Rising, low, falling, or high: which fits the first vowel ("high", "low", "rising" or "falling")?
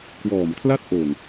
low